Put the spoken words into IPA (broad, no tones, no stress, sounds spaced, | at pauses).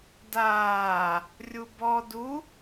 d aː | rʲ u b ɔ d u